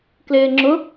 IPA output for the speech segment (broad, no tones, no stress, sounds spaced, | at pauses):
k l ɪː ŋ͡ǁ ʊ